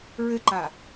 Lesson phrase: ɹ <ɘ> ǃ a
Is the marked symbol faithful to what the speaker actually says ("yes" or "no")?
yes